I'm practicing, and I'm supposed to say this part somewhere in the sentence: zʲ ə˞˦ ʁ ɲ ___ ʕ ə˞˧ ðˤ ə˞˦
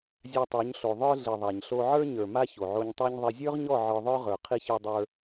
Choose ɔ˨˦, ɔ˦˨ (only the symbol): ɔ˦˨